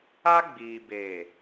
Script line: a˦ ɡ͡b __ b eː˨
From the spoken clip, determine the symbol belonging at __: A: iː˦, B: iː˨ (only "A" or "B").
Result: B